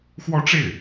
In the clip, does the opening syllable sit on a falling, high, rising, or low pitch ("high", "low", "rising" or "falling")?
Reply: high